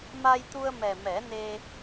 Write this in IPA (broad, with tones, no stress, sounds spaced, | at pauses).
m a˧ j t̪ u˧ ə̯ m ɛ˨˩ m ɛ˨˩˦ n e˧